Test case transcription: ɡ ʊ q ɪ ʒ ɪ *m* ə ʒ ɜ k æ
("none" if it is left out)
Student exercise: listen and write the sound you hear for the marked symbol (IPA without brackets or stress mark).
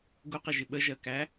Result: ɓ